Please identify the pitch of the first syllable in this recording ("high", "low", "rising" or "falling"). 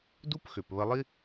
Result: high